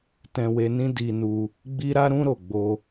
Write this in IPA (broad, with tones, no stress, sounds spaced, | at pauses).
t ɛ̃˧ w e˧ n ĩ˦ d i˧ n u˧ | ɡ͡b i˦ ɾ a˦ ɾ ũ˦ ɾ o˦˨ ɡ͡b o˧